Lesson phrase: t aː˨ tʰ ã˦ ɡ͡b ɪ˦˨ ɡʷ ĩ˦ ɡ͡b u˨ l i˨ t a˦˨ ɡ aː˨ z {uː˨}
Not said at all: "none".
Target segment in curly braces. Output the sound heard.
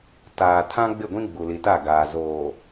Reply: oː˨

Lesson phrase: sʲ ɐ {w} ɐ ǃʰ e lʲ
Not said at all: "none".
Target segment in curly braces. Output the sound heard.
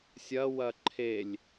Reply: w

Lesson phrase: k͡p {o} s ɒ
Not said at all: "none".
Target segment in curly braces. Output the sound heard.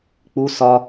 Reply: u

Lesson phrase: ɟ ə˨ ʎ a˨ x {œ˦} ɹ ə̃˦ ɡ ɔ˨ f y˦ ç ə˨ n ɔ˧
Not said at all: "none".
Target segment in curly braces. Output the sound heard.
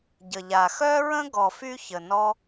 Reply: œ˦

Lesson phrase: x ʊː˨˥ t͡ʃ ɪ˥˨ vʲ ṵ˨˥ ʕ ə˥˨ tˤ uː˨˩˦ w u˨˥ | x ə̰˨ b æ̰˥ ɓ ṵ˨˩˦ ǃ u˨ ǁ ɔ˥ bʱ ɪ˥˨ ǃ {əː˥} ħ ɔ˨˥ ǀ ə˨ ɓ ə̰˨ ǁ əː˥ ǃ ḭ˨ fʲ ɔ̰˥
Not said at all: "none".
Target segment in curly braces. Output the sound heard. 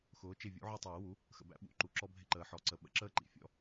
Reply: əː˨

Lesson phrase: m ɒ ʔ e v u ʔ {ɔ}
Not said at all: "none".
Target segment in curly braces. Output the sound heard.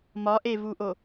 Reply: o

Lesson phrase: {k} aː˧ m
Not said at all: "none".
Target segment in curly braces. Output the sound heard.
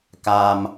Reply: k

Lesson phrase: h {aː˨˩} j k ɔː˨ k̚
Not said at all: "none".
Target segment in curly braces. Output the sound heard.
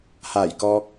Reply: aː˨˩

